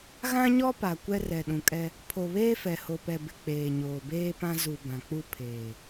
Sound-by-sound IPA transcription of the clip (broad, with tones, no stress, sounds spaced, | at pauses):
ɣ ã˦ ɲ ɔ˦ p a˨ kʷ ɛ˦ r ɛ˨ ɗ ũ˨ kʼ ɛ˦ | pʰ o˨ β eː˦ f ɛ˨ h o˨ p ɛ˨ b ɪ˨ k͡p eː˨ ɲ oː˨ b eː˦ p ã˦ z u˨ b ã˨ k͡p u˦ pʰ eː˨